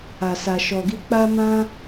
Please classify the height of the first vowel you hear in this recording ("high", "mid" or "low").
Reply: low